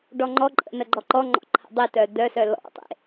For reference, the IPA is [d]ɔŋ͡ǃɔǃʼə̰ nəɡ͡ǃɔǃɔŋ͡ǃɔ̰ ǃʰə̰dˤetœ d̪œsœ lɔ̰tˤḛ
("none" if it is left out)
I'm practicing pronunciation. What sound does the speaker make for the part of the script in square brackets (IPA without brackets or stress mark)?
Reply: ɖ